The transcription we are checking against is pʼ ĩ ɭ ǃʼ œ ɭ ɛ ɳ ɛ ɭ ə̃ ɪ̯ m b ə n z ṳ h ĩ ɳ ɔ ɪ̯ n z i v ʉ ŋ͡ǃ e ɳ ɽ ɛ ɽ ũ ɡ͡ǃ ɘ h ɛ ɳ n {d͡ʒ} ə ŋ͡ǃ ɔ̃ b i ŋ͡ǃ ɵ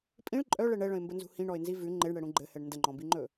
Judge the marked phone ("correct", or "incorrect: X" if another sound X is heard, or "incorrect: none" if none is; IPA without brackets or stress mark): incorrect: d